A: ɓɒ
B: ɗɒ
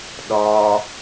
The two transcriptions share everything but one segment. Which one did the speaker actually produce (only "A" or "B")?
B